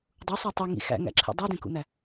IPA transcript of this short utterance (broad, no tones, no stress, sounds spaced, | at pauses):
dˤ u sˤ æ tˤ i ŋ ḭ x æ̰ ŋ æ̰ ǁʰ ḛ dˤ u d ẽ k ṵ n̪ æ